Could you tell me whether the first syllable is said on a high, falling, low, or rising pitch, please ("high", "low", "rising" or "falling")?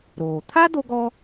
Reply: low